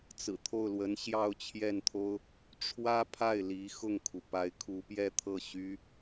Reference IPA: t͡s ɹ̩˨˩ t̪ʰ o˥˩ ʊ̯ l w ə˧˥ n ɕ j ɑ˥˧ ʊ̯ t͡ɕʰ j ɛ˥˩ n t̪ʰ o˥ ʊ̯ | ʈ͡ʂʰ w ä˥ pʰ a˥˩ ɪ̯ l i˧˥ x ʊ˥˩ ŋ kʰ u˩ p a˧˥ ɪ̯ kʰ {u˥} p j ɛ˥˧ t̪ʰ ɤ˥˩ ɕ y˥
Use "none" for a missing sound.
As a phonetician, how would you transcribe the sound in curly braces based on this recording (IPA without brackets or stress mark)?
u˧˥